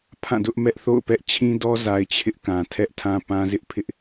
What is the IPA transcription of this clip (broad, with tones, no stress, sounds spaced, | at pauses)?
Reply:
pʰ ã˦˨ d ʊ˦ ʔ m ɛ˦ ʔ θ o̰˦˨ ʊ̯ p ɛ˦ ʔ t͡ɕʰ ĩ˦ d ɔ˦ z a˨ ɪ̯ t͡ɕʰ ɪ˦ ʔ k ã˨ tʰ ɛ˦ ʔ tʰ ã˦ p ã˦ z ɪ˦ ʔ pʰ ɪ˦ ʔ